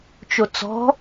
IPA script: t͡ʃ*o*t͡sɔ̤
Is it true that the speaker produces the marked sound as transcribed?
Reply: yes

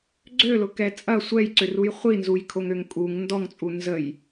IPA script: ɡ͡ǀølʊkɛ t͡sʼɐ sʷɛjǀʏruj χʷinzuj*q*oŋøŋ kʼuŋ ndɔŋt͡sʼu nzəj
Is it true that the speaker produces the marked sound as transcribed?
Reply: no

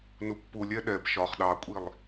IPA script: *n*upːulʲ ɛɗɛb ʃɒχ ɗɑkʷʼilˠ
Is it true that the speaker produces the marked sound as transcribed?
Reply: yes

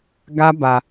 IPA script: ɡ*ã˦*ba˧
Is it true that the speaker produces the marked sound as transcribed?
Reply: no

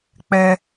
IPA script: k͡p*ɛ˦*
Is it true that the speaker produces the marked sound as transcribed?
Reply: yes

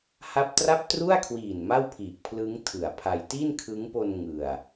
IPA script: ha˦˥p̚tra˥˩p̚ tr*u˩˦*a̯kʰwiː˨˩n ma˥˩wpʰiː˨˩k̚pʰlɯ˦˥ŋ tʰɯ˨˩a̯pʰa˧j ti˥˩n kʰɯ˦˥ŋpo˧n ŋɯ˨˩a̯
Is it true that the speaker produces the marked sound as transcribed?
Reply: no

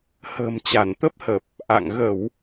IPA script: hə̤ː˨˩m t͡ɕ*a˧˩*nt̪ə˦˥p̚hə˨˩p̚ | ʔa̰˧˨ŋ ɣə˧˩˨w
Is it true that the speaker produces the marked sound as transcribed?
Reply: yes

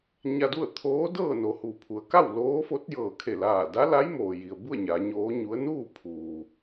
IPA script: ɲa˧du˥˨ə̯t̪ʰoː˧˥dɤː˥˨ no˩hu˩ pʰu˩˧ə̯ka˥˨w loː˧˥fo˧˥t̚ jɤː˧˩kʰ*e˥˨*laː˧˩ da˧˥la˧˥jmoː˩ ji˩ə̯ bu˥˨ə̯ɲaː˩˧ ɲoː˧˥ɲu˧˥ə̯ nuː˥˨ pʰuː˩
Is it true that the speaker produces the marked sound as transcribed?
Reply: no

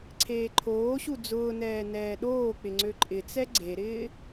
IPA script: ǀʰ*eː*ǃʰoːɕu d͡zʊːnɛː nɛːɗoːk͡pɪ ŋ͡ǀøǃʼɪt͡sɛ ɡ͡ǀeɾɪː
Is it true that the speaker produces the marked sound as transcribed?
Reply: yes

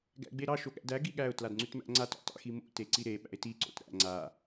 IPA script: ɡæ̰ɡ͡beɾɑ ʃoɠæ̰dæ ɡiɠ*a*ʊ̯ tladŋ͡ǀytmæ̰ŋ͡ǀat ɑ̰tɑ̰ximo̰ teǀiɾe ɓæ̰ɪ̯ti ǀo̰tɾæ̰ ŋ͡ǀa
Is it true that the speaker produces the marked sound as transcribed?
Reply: no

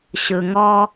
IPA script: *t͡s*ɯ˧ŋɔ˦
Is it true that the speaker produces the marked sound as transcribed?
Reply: no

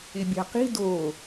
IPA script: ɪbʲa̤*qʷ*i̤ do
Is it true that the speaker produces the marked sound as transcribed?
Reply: no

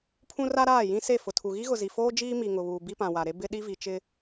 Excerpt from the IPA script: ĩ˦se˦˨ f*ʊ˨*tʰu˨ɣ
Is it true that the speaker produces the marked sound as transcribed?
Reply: yes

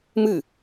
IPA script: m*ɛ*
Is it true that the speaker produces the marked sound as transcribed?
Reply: no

